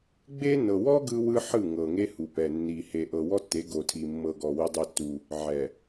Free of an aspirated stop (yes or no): no